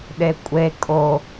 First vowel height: mid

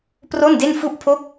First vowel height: mid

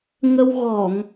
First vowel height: mid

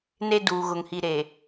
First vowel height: mid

